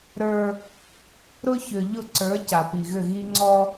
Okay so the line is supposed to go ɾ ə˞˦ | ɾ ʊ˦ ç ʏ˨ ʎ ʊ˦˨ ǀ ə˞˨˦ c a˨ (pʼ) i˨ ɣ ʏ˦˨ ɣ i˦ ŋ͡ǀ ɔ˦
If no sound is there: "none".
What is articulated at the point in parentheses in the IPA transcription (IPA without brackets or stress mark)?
p